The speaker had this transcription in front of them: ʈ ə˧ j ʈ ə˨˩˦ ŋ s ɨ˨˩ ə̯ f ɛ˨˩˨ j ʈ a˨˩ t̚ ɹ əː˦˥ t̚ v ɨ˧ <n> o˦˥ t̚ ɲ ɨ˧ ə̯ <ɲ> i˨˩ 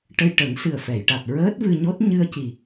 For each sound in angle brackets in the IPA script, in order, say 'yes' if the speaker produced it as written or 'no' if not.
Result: no, no

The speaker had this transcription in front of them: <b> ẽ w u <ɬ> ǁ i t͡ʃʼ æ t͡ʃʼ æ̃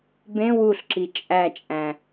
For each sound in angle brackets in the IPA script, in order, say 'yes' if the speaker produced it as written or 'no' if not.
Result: yes, yes

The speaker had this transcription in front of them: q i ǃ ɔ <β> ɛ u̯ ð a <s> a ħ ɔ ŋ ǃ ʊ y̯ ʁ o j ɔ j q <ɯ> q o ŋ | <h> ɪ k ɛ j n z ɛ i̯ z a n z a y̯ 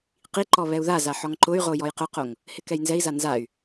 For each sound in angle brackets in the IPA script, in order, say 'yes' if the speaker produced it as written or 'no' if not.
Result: yes, no, no, yes

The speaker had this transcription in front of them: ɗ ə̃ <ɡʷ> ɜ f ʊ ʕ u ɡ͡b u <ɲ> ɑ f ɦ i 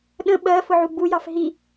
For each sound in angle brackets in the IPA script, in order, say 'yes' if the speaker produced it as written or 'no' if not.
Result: no, no

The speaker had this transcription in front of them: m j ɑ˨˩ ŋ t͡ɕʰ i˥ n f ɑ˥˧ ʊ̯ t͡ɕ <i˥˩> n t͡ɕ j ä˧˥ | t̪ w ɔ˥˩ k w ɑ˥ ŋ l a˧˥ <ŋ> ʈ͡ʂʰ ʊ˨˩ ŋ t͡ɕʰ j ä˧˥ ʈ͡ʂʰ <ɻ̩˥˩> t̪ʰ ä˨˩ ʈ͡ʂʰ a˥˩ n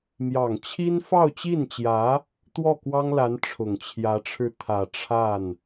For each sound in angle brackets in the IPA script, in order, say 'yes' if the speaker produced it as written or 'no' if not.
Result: yes, no, yes

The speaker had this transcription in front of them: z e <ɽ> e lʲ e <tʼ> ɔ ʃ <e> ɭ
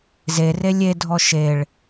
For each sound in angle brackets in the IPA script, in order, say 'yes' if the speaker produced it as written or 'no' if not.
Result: no, no, yes

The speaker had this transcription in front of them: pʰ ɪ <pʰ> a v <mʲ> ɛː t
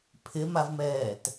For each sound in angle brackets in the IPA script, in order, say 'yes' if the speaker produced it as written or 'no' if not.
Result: no, no

